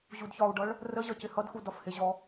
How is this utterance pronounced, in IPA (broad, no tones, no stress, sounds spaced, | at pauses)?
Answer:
ʑ u d ç ɒ u̯ ɖ ʌ ɭ | r ə ʑ ʌ c ɪ h ʌ d x u d ɒ f h ɪ ʑ ɔ